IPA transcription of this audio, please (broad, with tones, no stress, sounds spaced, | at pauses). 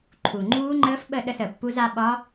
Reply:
ǃʰ u˨˩ ŋ͡ǃ uː˦˥ ŋ͡ǃ əː˦˥ f ɓ ə˥˨ ɗ ə˥˨ s ə˨˩ pː u˦˥ z a˦˥ ɓ ɒ˦˥